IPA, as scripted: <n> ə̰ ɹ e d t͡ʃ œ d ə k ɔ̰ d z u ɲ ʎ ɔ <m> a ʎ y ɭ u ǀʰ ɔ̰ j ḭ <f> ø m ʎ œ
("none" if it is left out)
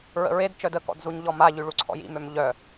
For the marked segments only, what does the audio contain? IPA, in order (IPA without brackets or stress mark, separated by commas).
ɹ, m, m